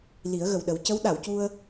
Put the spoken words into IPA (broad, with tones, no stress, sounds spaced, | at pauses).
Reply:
l i˨˩˦ ə̯ ɣ ə˨˩ w ɗ ə˨˩˦ w c ə˧˥ w ɗ a˨˩˨ w c u˧ ə̯